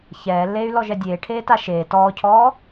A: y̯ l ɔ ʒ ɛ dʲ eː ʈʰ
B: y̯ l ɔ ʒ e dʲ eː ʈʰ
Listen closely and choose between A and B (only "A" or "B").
A